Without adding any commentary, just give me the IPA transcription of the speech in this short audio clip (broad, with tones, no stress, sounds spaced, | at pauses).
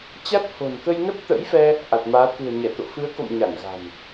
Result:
t͡ɕ a˦˥ t̚ h o̤˨˩ n k ə˧ j n ə˦˥ p̚ t̪ ə̰˧˥ j f ɛ˧ | ʔ a˨˩ t̚ m aː˨˦ t̪ ṳ˨˩ ə̯ ɲ ɛ˧˩ t̪ o̰˧˨ f ɨ˨˦ ə̯ k o̰˧˨ m ɲ a˧˩ n ɣ a̤˨˩ n